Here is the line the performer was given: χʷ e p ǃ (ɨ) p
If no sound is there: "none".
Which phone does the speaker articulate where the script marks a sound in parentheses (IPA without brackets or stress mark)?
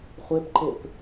e